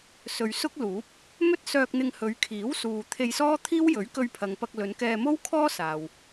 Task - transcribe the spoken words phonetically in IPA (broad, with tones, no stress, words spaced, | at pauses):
sɵ˨ɥsʊ˥k̚luː˨˥p̚ | mɵ˥t̚sœː˧k̚n̪ɪ˧ŋhɵ˨˧ɥ kʰiː˨˥wsuː˨ t̪ʰe˧jsɔː˥t̪ʰiː˥w jɵ˨˥ɥ kɵ˧ɥpʰɐ˨ŋpɐ˧k̚lɵ˨˧n kɛː˧mo˥wkʰɔː˥ saː˨w